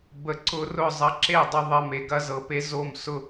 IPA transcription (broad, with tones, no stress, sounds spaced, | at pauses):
b ə˨ ǀ ʊ˧ r ʊ˦˨ zˤ ɐ˧ ǁ e˦˨ dˤ ʊ˧ ðˤ ɐ˧ m e˨ ɡ ɐ˦ z ɤ˧ p e˦ z o˦˨ m s ʊ˦